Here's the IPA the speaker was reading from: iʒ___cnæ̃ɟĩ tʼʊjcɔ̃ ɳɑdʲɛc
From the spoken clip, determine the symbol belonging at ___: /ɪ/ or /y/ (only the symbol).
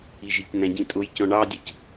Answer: ɪ